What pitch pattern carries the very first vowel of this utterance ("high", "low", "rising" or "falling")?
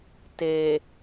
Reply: low